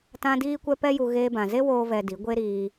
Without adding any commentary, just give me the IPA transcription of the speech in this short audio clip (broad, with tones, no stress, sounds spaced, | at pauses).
t ã˦ d iː˦ kʷ ɛ˦ p ɛ˦ j u˧ ɣ eː˧ b ã˨ z e˦ w oː˦ v ɛ˧ d i˨˦ ɡʷ e˦ ɾ iː˧